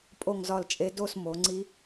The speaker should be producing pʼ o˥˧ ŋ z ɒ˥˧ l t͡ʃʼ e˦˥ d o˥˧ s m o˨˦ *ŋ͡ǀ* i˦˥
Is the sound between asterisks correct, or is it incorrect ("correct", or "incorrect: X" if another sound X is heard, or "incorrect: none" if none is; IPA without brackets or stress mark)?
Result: correct